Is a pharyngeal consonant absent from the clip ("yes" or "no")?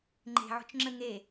no